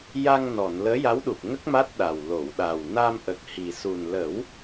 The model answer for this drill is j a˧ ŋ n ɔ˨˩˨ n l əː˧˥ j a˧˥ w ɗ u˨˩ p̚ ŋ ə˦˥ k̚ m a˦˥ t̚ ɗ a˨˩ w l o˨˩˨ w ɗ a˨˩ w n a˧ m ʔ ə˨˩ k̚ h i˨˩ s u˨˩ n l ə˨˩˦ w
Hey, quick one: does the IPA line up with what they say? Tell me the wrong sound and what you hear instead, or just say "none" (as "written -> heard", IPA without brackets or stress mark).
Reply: none